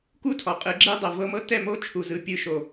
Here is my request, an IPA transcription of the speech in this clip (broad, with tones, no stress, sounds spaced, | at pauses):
k u˦ tʰ ɔ˨ qʼ ɯ˨˦ ɡ͡ǁ e˦ dˤ ɤ˨ v ɤ˧ m ɤ˦ t ɛ˦˨ m o˦ t͡ʃʰ u˨ z ɯ˨ pʲ ɯ˨ ʃ o˨